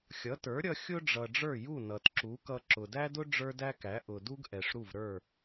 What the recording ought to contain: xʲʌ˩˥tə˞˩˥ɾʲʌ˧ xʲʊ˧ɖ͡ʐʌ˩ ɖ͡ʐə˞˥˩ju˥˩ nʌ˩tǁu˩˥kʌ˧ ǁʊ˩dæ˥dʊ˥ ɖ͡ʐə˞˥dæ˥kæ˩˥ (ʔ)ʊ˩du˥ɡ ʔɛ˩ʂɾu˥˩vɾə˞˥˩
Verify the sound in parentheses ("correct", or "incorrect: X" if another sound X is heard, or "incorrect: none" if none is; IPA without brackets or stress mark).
correct